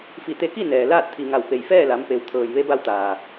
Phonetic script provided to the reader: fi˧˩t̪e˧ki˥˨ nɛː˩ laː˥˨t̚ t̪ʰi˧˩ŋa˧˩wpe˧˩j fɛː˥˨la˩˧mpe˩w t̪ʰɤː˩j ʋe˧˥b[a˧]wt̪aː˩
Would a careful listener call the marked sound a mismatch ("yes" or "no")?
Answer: no